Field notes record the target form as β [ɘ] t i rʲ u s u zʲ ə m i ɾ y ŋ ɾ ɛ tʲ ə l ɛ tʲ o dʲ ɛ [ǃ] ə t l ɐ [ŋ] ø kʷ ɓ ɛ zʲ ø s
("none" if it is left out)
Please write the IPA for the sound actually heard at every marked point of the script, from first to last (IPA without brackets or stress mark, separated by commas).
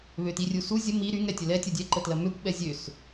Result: ø, ǃ, m